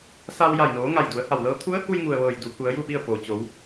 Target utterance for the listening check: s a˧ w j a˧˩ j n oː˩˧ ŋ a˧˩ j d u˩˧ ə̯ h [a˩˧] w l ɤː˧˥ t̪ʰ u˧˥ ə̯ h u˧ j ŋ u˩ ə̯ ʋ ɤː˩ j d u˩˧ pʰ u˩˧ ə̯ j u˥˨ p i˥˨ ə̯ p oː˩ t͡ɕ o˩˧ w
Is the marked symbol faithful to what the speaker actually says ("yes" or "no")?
no